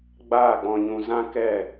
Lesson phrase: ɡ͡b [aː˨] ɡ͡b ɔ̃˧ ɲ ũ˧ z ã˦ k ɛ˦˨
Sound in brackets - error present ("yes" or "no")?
yes